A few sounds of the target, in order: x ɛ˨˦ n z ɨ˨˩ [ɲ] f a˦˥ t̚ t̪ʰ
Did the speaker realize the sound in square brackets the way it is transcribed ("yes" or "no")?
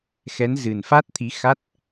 no